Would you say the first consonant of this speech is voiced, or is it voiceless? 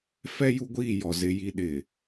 voiceless